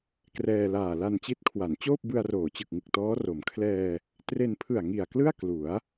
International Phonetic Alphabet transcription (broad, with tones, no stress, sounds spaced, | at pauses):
k r ɛː˧ l aː˨˩ l a˧ n t͡ɕ i˦˥ t̚ kʰ w a˩˦ n t͡ɕ oː˥˩ p̚ b ɯ˧ a̯ r oː˩˦ t͡ɕ ɯ˨˩ k̚ ŋ ɯ˨˩ k̚ t ɔː˦˥ r o˩˦ m kʰ l ɛː˧ | t r e˧ n pʰ ɯ˨˩ a̯ ŋ i˨˩ a̯ k l ɯ˥˩ a̯ k l u˩˦ a̯